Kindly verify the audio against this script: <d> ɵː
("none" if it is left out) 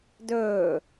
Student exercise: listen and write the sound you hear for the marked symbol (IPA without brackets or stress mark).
d